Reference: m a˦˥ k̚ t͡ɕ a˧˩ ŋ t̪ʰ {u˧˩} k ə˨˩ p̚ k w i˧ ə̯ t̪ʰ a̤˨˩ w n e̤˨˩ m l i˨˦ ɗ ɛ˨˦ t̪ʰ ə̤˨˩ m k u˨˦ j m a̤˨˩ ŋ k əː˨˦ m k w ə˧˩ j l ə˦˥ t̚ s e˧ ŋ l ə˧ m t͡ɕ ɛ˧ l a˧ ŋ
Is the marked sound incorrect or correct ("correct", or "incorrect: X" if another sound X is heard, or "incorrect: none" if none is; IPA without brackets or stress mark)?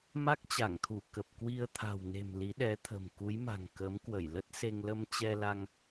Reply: correct